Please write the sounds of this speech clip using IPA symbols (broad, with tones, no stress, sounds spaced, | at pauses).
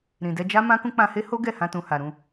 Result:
ɾ ĩ˨ d ɛ˧ d͡ʒ a˦ m ã˦ k ũ˧ k͡p ã˧ h e˦ h o˦ ɡ ɛ˦˨ h ã˧ t ũ˨ h a˨ ɾ ũ˧